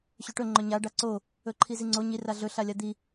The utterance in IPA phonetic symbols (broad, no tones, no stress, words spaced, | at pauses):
ɕɵʈɵ ŋ͡ǃɵɲa ɖaǀo | ɵǃʰiziŋ͡ǀo ɲi raɮɵ ɬalʲad̪i